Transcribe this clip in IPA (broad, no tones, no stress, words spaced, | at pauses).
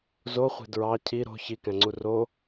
zoχʷe̤ dɹɑ cʰi ɾo̤ çikæ̃ŋ͡ǀu ro